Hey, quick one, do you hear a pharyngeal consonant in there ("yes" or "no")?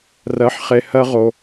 yes